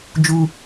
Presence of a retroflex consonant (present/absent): absent